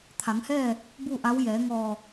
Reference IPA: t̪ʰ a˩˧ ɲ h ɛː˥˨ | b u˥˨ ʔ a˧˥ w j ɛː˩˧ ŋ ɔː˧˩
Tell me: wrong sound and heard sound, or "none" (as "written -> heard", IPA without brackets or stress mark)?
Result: ɲ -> ŋ